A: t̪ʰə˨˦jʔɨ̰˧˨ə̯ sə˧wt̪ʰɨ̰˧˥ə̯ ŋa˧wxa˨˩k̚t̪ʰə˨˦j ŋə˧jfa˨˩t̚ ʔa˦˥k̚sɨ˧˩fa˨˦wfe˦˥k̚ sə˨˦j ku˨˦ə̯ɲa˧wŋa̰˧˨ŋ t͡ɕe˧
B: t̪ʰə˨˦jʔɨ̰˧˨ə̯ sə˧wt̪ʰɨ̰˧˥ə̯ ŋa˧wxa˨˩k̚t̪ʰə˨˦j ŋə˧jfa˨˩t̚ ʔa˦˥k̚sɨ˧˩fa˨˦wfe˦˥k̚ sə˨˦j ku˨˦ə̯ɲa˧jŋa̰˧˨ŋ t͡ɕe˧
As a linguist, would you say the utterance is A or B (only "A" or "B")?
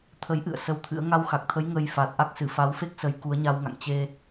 A